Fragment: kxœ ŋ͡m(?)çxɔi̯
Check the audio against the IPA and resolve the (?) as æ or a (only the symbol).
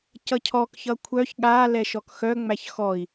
æ